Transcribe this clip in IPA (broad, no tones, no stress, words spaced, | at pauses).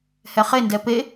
hɛχe ndɛpe